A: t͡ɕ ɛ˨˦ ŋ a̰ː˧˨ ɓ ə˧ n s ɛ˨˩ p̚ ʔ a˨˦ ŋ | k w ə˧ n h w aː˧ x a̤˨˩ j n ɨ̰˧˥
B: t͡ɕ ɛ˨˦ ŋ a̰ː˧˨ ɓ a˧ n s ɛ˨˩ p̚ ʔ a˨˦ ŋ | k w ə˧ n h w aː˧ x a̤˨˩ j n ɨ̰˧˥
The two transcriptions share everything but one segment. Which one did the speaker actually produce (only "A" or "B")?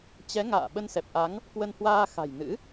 A